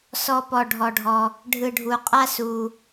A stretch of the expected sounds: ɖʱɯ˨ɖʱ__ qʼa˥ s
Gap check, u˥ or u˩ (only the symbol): u˩